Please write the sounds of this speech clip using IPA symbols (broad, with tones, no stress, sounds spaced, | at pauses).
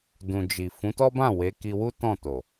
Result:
d ũ˨ d͡ʒ i˨ f ũ˨˦ t ɔ˦ b ã˦˨ w e˨˦ k i˧ w u˦ t ɔ̃˦˨ t o˨